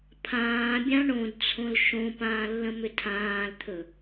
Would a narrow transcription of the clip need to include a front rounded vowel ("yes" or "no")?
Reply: yes